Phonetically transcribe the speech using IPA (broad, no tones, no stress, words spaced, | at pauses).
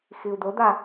xiu̯d̪od̪a